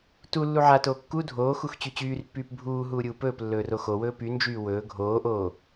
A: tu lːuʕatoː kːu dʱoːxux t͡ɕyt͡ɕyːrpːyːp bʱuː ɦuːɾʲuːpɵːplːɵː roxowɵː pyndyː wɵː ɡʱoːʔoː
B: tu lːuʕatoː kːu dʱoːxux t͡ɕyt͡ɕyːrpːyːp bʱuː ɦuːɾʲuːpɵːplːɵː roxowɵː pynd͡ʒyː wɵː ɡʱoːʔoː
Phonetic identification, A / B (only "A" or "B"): B